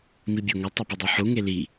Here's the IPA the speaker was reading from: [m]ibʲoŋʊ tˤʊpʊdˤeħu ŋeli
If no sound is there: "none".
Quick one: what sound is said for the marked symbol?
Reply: m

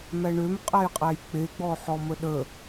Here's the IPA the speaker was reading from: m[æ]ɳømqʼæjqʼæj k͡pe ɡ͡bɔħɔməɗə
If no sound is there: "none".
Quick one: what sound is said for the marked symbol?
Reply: æ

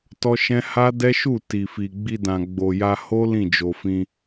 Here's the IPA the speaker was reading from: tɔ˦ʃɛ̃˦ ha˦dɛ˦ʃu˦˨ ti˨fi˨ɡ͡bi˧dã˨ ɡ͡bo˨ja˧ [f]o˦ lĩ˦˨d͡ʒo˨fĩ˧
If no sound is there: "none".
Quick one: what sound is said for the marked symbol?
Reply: h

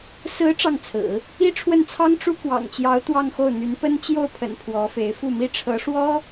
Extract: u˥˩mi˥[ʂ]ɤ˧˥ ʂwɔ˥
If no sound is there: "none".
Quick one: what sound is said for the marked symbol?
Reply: ʈ͡ʂʰ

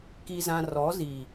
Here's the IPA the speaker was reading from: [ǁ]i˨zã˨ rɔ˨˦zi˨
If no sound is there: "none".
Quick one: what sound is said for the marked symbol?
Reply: k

